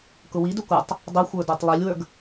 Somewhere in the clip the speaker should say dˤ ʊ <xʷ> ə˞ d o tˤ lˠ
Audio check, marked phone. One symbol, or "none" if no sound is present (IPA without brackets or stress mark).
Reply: xʷ